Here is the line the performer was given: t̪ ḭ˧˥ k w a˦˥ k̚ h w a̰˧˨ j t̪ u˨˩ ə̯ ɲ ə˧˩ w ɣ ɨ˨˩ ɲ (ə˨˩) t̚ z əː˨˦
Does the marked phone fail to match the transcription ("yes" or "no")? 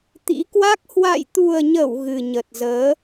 no